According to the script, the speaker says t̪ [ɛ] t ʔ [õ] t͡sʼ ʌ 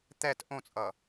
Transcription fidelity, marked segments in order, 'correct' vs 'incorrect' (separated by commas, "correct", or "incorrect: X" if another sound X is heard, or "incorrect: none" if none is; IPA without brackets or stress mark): correct, correct